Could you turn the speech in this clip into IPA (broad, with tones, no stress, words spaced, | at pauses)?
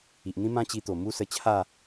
i˨ʔ n̪ĩ˦mã˦t͡ɕi˧t̪o˨˩ mu˦sə˧ t͡ɕʰa˥˧